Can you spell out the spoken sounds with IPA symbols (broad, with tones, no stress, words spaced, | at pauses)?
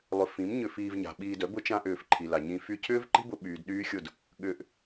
lˠʏ˨ fĩ˨˦mɲʏ˧fiː˧vɲa̤˨ ɓiː˧dœ˨˦ bʊ˦t͡ʃã˦ʔʏː˧f ǃʰi˨la˨ ɲĩ˧ fy˧cʰʏː˦vǃi̤˦bʊ˧ ɓyː˨dɗyː˦xʲʊ˦˨d | ɠʏː˧ʔ